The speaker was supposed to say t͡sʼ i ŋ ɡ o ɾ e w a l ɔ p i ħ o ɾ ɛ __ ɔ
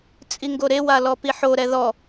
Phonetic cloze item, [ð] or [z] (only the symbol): ð